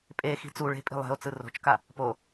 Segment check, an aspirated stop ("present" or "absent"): absent